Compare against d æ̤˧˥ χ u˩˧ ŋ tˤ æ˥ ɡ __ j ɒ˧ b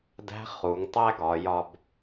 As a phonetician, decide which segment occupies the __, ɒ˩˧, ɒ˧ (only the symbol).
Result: ɒ˩˧